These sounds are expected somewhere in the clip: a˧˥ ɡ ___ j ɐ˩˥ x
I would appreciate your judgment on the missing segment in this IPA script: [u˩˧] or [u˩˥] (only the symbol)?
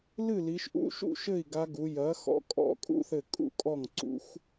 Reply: u˩˧